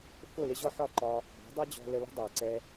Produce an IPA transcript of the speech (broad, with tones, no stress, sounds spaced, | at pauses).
f ʊ˦˨ l ɪ˦ ʑ ɔ˦ ħ ɒ˦˨ ǃ ɒ˧ | b ɔ̤˨˦ dˤ ɛ˦ d͡ʑ ɔ̤˧ l ə˧ l ə̤˦ dˤ ɑ˨ ǀ ɛ˧